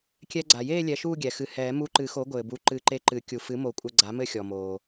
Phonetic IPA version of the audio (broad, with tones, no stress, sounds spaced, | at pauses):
kʲ ɛ˧ ɡ͡ǀ a˩ j eː˥˧ lʲ ɛ˩˥ ʃ uː˥˧ ɡʲ ɛ˩ x ɨ˨˩˦ h ɛː˨˩˦ m u˧ ǃ ɨ˨˩˦ x o˩˥ ɡʷ ɘː˩ b u˩˥ ǃ ɨ˨˩˦ ǃ e˧ ǃ ɨ˨˩˦ kʲ u˩ f ɨ˩˥ m o˨˩˦ kʷʼ ɘ˧ ɡ͡ǀ a˩˥ m ɘ˥˧ xʲ ɔ˩ m oː˩